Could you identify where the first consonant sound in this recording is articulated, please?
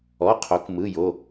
uvular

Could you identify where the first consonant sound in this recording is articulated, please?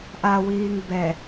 glottal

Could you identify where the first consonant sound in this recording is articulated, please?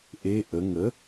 glottal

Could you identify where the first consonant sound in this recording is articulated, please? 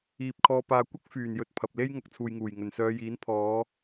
labial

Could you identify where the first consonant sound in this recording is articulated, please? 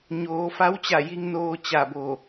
palatal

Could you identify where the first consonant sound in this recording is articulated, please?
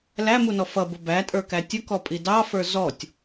alveolar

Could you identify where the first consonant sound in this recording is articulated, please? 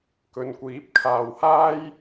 velar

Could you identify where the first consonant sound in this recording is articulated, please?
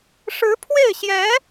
retroflex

